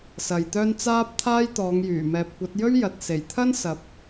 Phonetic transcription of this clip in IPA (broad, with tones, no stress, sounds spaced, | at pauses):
s ɐ˨ j t̪ œː˥ n t͡s aː˥ p̚ t̪ʰ aː˥ j t̪ ɔː˨˧ ŋ j yː˨˩ m ɛː˨ p̚ kʷ ɐ˨˥ t̚ j ɵ˥ ɥ j ɐ˨ t̚ s e˨˩ j t̪ʰ ɐ˥ n s ɐ˨ p̚